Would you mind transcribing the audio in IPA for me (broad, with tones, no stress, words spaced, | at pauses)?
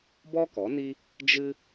bɔ˦kɔ˨˦ni˦ | d͡ʒɨ˦